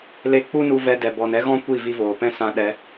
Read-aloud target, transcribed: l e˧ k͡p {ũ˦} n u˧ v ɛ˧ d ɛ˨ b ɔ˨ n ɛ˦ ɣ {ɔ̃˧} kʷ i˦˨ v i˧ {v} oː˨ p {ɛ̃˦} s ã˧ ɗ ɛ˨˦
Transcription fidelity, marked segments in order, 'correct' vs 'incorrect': incorrect: u˦, incorrect: ɔ̃˦, correct, correct

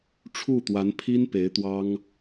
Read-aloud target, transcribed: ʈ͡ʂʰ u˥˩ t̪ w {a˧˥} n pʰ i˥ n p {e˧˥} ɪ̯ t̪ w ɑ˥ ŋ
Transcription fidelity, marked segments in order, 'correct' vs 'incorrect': correct, correct

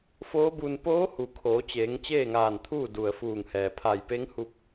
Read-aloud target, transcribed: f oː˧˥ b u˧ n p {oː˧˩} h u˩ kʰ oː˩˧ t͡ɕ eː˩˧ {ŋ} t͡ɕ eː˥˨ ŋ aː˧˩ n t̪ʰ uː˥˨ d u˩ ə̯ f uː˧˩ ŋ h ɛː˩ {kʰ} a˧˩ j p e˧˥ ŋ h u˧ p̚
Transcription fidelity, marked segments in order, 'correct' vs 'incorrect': incorrect: oː˧˥, correct, incorrect: pʰ

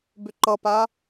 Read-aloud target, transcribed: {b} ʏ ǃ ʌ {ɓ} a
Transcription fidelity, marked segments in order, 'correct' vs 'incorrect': correct, incorrect: p

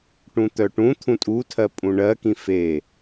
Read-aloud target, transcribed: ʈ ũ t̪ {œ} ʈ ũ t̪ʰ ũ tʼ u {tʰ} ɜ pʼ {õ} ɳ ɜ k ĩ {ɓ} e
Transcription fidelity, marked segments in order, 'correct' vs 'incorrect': correct, correct, incorrect: ũ, incorrect: f

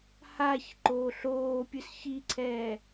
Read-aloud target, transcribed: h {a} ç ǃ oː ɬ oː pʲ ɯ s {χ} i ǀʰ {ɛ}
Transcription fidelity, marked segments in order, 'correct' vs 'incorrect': correct, incorrect: ç, incorrect: ɛː

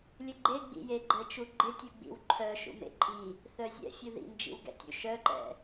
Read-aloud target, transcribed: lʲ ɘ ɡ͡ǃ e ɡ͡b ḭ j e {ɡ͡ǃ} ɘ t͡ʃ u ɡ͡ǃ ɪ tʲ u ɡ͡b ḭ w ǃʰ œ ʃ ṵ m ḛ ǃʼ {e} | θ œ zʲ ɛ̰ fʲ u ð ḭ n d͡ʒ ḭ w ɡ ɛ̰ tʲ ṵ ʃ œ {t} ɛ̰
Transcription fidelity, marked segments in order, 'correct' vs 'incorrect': correct, incorrect: i, incorrect: ǃ

